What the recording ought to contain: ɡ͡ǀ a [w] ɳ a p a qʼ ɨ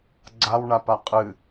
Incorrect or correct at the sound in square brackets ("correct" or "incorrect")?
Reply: correct